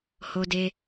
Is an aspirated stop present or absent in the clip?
absent